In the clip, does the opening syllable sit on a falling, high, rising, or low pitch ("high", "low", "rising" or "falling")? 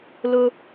high